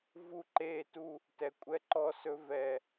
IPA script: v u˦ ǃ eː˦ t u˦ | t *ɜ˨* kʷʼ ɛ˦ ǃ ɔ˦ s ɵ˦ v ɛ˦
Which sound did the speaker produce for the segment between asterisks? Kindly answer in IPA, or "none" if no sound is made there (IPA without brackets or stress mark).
ɛ˨